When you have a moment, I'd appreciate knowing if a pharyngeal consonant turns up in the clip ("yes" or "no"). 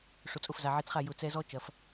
yes